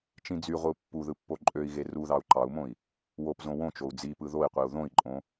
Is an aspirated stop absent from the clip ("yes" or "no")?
yes